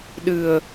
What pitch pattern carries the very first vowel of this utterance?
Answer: low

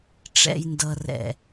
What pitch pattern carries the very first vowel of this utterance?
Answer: low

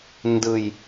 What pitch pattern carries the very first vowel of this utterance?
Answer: low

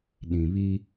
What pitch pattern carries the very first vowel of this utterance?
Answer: low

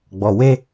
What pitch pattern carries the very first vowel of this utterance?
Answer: low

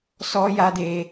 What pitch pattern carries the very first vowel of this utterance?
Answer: high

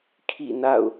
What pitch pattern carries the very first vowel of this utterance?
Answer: falling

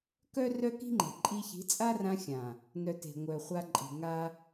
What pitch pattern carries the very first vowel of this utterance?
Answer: high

